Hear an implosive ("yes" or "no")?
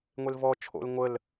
no